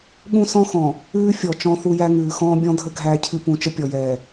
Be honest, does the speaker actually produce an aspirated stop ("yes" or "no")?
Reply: yes